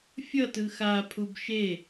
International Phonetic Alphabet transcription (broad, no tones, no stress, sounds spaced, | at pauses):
fʲ ʌ t ɯ x a pʰ u b ʃ e